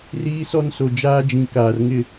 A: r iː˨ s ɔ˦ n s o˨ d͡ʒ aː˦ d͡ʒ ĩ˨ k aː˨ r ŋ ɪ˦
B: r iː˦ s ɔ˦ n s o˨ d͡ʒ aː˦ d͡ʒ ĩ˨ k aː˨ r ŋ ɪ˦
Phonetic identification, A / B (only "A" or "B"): B